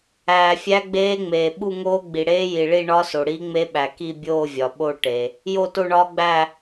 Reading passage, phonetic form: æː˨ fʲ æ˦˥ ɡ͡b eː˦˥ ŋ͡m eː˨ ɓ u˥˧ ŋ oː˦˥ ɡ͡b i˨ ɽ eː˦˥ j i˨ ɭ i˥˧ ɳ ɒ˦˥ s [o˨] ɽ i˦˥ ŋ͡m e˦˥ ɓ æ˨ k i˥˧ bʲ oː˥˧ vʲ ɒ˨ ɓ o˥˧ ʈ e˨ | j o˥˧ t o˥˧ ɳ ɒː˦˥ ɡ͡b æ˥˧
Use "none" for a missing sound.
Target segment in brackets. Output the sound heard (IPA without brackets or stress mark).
o˨